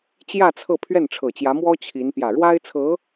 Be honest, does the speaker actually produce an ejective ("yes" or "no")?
no